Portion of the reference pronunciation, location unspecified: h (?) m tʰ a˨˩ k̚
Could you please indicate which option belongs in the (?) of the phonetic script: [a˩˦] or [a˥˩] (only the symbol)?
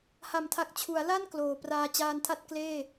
a˩˦